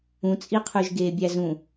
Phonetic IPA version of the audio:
ũt͡sʼiqʰʉʒ ɡeːbʲæzũ

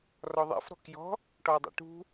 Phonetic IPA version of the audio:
rɔðˤɛ̰f ɾɔ̤kjɔ̤ | ʈɔi̯dˤɛ̰ʈṳ

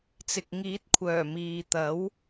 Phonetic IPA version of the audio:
t͡sɪ˨k̚ ŋiː˨˥t̚kʷʰœː˨˩ miː˨t̪ɐ˨˥w

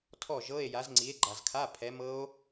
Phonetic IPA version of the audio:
tʰɔ˥˩ʒɤ˧˥˧e̯ ja˨˥zŋ͡ǀi˨˥e̯ ɡ͡ǃa˨zkʰa˧˥˧ pʰɛ˨˥mɤ˦˥o̯

